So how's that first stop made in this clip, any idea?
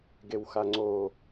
plain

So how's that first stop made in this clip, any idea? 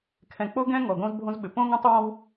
aspirated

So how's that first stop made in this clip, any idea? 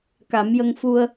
plain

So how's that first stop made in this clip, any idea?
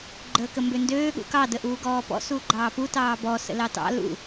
click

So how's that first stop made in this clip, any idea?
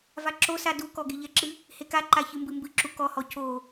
click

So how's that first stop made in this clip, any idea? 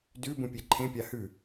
plain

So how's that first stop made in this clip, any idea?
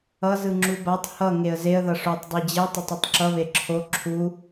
click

